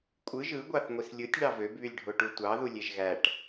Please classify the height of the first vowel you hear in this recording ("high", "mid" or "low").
high